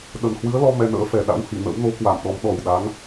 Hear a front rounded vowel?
no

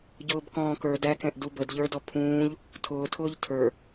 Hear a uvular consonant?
no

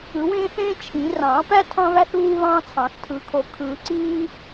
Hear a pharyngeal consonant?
no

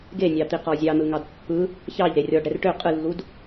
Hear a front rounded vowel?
yes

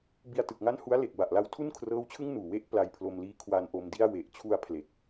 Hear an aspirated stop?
yes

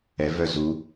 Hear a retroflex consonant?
no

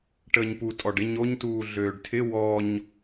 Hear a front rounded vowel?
yes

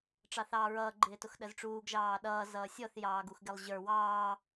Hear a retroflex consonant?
yes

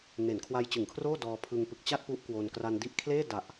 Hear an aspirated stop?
yes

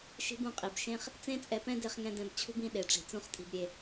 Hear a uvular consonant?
yes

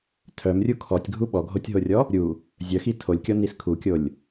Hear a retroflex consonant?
no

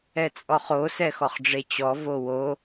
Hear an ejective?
yes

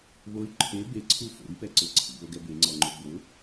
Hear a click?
yes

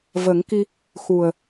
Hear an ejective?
no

